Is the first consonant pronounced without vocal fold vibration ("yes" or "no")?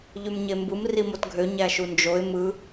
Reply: no